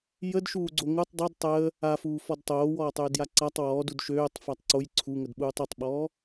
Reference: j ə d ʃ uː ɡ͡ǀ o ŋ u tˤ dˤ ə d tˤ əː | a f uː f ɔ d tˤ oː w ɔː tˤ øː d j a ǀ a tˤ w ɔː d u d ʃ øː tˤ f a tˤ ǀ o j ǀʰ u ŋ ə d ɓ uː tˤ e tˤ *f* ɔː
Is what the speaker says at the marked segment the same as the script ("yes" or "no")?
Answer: no